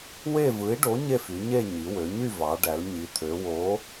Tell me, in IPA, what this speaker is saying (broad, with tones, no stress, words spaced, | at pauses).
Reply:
we˥˧vɯ˨˥i̯ɖo˨˥ ɲe˥˧fy˩˧ɲe˥˧ ɲi˩˧wø˩˧ɲy˥˧ vɑ˩˧ɖæ˩˧l ɲi˩˧t̪ʰø˩˧ wo˨˥